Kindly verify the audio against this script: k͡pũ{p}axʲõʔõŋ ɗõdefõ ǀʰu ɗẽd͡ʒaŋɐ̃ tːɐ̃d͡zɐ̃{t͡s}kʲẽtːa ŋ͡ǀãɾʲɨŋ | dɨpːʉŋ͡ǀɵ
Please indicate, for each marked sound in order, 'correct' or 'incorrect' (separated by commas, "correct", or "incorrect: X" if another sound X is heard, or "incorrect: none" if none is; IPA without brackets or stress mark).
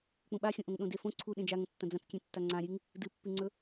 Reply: incorrect: ɓ, correct